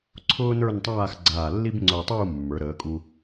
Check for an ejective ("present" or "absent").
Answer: present